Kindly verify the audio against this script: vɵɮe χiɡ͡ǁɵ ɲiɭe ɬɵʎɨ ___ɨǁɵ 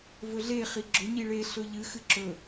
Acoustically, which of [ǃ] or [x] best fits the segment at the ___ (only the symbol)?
x